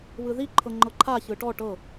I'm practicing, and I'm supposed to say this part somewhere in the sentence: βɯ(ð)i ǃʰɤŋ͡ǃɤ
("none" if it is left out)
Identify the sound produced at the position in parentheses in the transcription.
ð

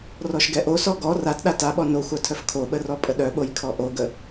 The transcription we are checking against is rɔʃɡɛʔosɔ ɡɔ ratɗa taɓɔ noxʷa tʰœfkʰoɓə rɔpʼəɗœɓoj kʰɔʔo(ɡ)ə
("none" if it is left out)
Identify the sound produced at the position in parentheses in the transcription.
ɡ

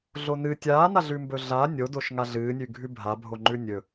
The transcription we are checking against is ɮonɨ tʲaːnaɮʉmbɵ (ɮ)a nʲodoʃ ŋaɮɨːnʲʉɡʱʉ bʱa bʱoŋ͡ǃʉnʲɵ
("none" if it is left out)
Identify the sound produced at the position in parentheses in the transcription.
ɮ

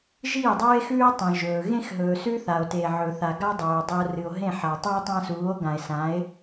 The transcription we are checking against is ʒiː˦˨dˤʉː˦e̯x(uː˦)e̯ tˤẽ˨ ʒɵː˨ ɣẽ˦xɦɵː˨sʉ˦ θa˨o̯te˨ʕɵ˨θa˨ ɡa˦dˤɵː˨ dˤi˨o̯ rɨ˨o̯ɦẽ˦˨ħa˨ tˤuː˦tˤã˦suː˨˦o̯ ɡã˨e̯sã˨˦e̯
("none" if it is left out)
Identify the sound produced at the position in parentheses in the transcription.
ʉː˦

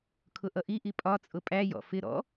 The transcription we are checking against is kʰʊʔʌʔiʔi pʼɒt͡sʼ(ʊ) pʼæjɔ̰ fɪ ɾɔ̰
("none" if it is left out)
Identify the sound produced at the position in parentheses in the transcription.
ʊ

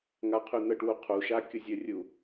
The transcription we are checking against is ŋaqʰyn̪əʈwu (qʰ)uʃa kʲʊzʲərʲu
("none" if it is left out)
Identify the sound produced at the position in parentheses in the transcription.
qʰ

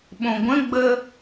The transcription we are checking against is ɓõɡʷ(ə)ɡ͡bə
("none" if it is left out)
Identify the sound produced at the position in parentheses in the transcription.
ə̃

